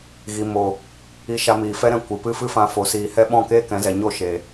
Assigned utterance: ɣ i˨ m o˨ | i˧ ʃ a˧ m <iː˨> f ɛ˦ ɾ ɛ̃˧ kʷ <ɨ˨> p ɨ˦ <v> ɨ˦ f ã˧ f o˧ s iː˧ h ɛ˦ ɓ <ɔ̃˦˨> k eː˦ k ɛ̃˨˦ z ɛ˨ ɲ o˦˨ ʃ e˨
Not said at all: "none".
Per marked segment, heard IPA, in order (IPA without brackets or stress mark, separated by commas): iː˨, ɨ˨, f, ɔ̃˦˨